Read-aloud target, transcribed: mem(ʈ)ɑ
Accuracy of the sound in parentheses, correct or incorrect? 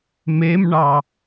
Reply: incorrect: ɳ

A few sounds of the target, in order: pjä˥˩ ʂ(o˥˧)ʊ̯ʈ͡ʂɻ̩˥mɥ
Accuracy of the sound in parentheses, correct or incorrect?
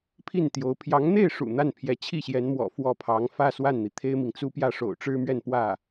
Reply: incorrect: o̰˨˩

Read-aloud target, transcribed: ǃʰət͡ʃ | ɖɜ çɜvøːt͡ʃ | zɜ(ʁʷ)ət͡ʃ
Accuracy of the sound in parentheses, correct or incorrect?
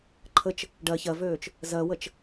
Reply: incorrect: w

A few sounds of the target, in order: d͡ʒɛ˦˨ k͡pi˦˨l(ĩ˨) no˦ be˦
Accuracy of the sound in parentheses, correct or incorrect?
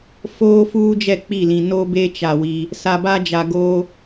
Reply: correct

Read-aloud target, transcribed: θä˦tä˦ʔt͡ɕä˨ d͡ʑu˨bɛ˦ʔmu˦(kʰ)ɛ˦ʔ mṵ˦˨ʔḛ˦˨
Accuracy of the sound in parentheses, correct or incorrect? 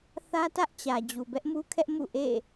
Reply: correct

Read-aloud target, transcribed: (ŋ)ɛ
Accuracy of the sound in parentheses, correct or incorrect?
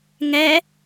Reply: correct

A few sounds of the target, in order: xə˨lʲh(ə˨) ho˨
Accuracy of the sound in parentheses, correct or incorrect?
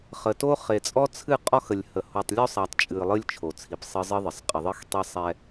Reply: correct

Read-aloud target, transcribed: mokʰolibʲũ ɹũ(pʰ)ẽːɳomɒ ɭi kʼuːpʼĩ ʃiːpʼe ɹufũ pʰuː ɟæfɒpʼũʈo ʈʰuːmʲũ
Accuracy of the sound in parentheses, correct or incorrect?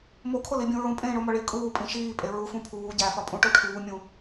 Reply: incorrect: pʼ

